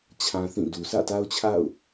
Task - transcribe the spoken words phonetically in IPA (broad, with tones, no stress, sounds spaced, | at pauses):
t͡ɕʰ ã˦ θ ĩ˦˨ d u˨ sʰ ä̰˦˨ t a˦ ʊ̯ t͡ɕʰ a̰˦˨ ʊ̯